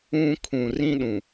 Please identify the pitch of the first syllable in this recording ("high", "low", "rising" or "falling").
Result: high